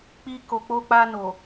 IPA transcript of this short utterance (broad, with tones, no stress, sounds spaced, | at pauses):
k͡p i˧ k o˨ k͡p o˧ k͡p a˧ n o˨